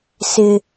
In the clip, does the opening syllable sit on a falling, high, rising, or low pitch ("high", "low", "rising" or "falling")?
high